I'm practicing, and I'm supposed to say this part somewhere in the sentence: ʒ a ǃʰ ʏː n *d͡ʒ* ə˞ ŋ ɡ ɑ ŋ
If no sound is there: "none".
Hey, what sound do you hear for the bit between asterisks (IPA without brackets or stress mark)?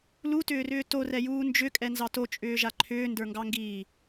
d